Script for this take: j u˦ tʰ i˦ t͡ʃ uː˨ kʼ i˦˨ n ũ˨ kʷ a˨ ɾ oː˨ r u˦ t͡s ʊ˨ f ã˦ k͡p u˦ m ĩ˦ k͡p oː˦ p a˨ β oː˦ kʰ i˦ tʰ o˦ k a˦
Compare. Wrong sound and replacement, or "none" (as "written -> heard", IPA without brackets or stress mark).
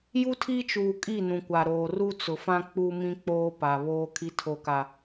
none